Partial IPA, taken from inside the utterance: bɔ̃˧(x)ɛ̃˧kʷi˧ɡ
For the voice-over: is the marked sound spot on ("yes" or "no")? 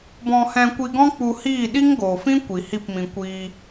no